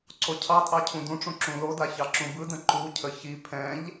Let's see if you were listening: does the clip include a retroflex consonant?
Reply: yes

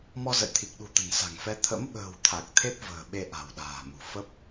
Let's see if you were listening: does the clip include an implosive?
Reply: yes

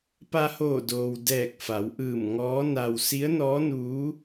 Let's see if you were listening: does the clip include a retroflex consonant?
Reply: no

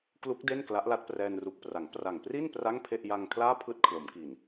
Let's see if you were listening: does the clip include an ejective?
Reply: no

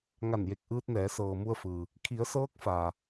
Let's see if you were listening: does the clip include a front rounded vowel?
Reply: no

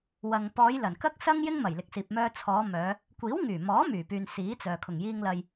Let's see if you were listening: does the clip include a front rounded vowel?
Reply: yes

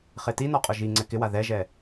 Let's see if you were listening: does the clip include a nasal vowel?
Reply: no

